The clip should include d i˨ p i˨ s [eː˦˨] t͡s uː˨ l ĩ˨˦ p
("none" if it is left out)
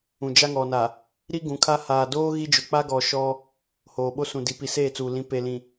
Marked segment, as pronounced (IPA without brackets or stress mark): eː˦˨